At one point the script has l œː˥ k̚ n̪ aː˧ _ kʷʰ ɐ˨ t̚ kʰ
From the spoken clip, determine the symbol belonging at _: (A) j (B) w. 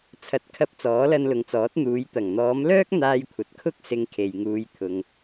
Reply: A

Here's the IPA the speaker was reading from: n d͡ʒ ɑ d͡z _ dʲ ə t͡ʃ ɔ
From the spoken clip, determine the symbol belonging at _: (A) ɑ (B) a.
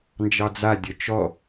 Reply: B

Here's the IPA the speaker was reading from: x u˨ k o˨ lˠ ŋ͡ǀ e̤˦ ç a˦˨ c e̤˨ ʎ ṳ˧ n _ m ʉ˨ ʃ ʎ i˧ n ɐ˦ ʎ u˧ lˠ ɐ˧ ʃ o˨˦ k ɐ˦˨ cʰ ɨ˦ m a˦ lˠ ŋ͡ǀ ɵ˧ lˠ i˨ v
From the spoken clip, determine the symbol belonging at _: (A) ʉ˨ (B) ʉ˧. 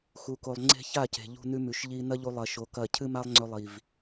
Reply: B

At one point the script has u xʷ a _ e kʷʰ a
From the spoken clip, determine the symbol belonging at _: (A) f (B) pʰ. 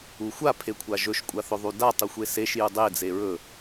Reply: B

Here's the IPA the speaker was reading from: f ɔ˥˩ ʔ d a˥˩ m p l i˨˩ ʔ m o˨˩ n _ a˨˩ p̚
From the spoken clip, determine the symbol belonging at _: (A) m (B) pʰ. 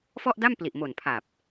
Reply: B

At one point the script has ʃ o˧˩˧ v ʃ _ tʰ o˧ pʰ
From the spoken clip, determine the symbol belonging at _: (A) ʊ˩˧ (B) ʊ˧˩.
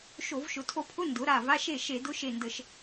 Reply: A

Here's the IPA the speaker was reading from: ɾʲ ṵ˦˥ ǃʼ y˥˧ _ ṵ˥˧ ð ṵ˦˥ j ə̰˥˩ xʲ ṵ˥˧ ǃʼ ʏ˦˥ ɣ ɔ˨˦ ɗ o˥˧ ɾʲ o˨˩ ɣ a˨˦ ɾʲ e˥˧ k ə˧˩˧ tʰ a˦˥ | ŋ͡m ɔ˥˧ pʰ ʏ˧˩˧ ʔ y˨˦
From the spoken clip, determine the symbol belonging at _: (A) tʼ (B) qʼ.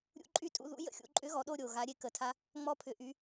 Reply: A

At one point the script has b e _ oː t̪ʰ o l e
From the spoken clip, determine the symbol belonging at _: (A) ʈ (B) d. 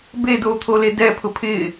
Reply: B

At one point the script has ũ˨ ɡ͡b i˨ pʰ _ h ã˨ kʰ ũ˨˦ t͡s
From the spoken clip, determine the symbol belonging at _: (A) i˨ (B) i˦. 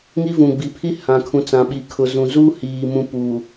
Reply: B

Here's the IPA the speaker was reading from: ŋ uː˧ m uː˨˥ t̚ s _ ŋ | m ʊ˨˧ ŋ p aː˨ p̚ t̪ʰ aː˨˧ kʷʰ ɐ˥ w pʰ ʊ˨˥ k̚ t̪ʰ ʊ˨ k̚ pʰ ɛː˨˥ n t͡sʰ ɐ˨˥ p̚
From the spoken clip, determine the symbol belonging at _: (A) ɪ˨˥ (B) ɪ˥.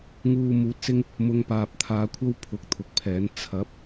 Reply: B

